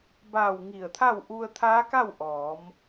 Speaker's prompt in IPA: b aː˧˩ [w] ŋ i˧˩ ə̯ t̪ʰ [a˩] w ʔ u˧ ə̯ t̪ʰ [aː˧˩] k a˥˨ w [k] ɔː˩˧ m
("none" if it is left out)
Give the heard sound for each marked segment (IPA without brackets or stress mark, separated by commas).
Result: w, a˥˨, aː˧˥, ʔ